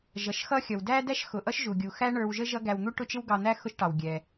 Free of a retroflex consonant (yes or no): no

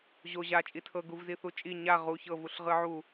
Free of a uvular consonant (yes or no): no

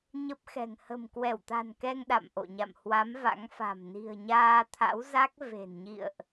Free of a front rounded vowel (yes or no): yes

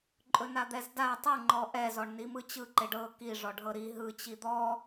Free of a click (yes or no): no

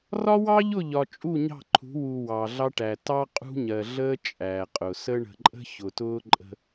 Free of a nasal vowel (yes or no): yes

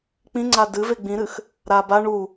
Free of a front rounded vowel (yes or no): yes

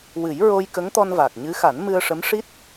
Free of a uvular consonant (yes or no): yes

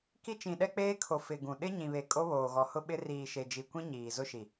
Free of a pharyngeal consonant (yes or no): yes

